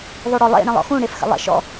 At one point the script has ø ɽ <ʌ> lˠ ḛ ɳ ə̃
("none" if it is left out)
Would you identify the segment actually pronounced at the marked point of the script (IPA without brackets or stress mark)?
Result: ɔ